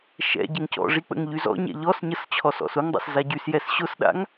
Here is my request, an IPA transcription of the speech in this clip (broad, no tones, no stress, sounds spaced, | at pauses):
ʃ ɛ̰ ɟ ə ŋ c ɔ̰ ʐ i k͡p ə̰ ŋ ʎ y z ɔ̰ ɲ ɛ̰ ʎ ɔ s ɲ ə s t͡ɕʰ ɔ s ɔ̰ s ʊ ŋ dˤ a̰ s z a ɟ y s j ɛ s ɕ ʊ s ɗ a̰ ŋ